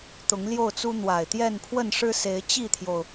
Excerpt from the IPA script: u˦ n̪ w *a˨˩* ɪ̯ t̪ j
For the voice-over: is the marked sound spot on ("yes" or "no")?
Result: yes